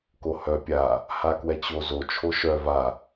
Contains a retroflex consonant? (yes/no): no